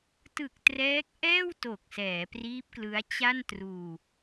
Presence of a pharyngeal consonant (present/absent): absent